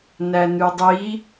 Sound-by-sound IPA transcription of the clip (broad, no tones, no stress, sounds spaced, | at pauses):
n æ n ʉ dˤ i